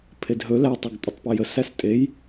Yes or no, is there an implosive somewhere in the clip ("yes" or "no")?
no